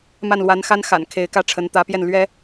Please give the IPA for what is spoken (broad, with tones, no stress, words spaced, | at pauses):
ma˥˩nlwa˧˥nxa˥nxa̰˨˩n kʰe˧˥ɪ̯kä˥ʈ͡ʂʰə˧˥n t̪ä˧˥pjɛ˥˩nlɥɛ˥